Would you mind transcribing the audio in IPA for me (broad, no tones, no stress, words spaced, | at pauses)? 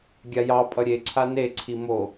ɡʲajɑpʼʌ ɾʲeǀʰa neǀʰi mo